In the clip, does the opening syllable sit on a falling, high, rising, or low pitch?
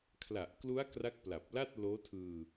low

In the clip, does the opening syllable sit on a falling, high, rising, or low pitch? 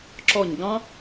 falling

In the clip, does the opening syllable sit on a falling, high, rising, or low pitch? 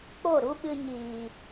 falling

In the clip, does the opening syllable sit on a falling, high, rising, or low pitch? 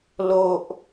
low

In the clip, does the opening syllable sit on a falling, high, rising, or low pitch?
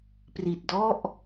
low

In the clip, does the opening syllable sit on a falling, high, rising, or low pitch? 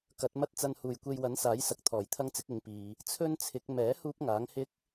rising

